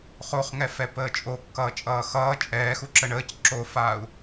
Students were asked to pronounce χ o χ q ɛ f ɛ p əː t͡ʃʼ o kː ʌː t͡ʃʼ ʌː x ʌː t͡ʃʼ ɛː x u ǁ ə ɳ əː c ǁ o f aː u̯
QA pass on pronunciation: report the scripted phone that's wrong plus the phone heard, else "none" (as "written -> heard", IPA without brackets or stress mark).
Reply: q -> ŋ